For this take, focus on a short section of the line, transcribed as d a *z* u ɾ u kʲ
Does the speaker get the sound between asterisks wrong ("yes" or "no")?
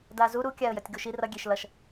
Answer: no